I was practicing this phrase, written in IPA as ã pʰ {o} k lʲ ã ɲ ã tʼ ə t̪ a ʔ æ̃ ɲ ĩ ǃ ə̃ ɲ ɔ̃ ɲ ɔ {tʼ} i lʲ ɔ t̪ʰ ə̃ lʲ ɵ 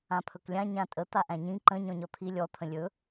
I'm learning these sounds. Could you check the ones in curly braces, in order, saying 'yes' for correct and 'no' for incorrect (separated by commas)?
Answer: no, no